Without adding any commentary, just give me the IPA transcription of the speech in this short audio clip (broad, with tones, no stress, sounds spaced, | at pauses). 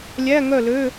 lʲ æ˧˥˧ ŋ œ˥˨ l ø˧˥˧